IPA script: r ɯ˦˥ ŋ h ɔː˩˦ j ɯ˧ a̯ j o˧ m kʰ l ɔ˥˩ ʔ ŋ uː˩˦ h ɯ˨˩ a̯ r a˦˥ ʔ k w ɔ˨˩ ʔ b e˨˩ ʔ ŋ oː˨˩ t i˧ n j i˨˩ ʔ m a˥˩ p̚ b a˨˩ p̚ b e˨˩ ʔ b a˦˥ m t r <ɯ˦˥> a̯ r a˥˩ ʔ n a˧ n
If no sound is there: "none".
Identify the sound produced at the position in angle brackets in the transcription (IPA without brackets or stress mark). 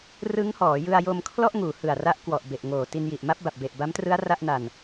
ɯ˦˥